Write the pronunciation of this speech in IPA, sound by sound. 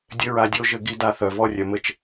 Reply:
dʲ ɘ˥ ɹ a˧ dʲ o˥ ʒ ɘ˧ ɡ i˧ d a˧ θ œ˩ v ɔ˧ rʲ œ˩ m ɘ˧ t͡ʃ

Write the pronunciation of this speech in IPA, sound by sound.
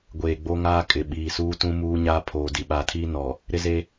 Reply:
ɡʷ eː˨ ɡ͡b o˦ ŋ aː˦ kʼ ɪ˨ ɓ iː˨ s uː˦ t ũ˦ m uː˦ ɲ aː˦ pʰ oː˨ d i˨ ɓ aː˨ tʰ iː˦ n ɔ˨ | ɾ ɪ˦ z e˦

